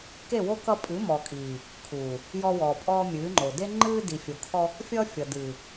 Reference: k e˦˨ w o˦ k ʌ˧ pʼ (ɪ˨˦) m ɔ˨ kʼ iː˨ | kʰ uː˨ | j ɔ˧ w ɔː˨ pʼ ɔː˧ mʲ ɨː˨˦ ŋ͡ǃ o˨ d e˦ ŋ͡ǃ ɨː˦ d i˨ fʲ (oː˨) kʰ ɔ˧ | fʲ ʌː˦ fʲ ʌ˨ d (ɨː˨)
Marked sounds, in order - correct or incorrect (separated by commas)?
incorrect, incorrect, correct